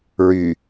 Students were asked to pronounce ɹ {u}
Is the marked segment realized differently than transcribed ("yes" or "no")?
yes